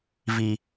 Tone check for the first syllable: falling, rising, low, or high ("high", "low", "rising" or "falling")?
high